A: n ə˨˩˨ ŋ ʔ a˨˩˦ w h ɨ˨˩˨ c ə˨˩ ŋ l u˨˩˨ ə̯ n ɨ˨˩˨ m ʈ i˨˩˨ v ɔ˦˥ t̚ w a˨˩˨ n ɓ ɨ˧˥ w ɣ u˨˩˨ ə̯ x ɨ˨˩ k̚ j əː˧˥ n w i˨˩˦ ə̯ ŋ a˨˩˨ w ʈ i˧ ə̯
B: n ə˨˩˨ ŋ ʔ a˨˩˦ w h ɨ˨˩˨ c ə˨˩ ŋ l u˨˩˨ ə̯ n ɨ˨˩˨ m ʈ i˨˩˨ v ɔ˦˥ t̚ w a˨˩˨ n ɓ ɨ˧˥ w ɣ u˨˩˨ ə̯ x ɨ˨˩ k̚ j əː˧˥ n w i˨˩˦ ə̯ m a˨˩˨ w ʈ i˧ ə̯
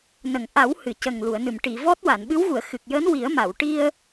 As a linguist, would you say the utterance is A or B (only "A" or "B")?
B